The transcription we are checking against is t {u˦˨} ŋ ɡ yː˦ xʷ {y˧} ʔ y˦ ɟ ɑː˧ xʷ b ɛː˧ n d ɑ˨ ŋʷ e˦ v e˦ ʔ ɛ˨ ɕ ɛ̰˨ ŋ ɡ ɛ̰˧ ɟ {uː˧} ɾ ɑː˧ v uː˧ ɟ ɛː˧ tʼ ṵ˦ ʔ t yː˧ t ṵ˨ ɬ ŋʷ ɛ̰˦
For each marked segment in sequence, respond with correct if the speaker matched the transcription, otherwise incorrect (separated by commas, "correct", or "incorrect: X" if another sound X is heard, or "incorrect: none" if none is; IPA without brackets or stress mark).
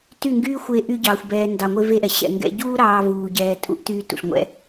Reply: incorrect: y˦˨, incorrect: e˧, incorrect: uː˦